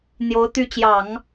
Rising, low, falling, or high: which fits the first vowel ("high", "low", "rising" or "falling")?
rising